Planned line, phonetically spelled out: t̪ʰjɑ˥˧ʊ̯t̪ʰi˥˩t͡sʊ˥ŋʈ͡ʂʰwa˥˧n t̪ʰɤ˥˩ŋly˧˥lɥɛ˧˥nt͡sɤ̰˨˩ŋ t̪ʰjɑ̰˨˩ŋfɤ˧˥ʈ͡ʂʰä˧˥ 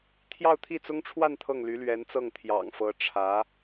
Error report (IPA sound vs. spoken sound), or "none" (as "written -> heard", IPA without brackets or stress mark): ɤ̰˨˩ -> ɤ˥˩